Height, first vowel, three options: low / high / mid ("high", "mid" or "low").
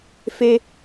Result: mid